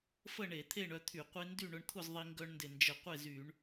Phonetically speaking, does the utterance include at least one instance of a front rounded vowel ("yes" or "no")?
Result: yes